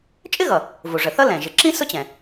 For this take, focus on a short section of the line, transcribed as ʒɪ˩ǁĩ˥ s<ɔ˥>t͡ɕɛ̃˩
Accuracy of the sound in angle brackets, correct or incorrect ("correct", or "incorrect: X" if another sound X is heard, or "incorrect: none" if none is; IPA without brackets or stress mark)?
incorrect: ʊ˥